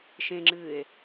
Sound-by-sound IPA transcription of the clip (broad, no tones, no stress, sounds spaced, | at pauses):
ʃ ẽ ŋ͡ǁ ɨː e̯